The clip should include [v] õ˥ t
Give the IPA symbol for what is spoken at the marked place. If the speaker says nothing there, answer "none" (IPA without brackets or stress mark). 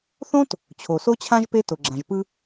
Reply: θ